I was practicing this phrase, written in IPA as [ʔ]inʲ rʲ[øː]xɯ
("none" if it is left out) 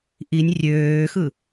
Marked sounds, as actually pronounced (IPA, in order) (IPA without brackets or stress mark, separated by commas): ʔ, øː